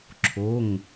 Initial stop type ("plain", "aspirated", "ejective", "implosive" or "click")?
click